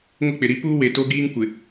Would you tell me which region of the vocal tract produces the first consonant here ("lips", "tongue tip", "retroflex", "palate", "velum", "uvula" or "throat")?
velum